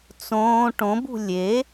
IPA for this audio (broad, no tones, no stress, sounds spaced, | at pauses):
t͡s õː ʈ õ b ṳ lʲ e